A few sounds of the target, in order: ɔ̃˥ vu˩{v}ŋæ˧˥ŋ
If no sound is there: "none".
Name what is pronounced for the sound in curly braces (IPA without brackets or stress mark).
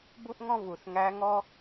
θ